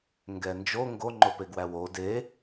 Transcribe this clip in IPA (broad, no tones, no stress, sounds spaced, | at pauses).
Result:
ŋ ɡ ɛ n d͡ʒ o ŋ ɡ o ŋ͡ǃ o p e ɡ w æ w o d e